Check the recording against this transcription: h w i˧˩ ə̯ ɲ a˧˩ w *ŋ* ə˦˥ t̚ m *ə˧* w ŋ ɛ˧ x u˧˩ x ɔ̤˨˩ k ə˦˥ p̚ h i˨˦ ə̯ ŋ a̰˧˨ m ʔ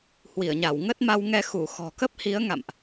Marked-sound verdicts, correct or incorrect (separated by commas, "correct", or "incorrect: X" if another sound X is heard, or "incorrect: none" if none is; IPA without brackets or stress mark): correct, incorrect: a˧